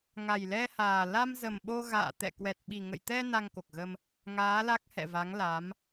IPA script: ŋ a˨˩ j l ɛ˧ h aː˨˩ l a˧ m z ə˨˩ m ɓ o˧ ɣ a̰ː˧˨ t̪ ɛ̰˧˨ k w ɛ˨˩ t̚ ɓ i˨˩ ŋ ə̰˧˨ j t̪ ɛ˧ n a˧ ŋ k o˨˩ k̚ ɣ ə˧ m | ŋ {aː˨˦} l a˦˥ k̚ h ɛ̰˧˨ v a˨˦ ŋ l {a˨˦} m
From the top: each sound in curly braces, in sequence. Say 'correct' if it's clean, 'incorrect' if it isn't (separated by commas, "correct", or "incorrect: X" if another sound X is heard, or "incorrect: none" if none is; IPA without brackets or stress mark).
correct, correct